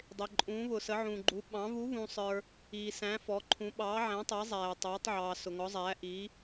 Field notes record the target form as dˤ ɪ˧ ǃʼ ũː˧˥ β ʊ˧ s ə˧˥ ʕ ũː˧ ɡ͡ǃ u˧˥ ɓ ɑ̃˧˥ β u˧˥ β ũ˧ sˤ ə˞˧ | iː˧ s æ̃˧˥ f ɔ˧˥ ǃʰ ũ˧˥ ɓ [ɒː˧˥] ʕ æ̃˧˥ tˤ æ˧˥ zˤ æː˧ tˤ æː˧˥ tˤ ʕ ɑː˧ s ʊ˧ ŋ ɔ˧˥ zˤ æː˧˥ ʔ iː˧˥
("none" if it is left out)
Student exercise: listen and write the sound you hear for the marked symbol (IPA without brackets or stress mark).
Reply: ɑː˧˥